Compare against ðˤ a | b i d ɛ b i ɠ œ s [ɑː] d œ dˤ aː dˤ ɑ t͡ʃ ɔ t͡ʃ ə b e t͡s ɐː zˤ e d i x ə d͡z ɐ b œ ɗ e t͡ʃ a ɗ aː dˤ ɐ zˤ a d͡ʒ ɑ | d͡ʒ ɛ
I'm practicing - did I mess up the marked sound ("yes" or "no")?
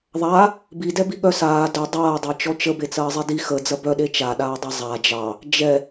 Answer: yes